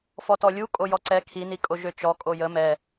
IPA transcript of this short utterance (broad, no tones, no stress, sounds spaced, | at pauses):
f ɔ t ɔ lʲ u kʼ o j ɔ ǀ ɛ kʰ i n i kʼ o ʒ ø t͡ʃ ɔ kʼ o j ə m ɛ